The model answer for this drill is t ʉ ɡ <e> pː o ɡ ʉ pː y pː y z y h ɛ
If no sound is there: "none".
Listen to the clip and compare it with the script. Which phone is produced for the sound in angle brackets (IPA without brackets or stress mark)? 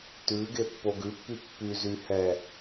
e